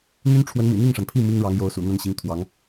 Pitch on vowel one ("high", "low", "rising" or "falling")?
high